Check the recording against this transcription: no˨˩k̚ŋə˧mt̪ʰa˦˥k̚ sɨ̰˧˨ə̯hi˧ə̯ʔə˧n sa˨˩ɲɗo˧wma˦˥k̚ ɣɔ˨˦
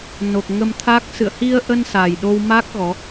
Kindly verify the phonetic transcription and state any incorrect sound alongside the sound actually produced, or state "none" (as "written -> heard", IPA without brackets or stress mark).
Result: ɲ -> j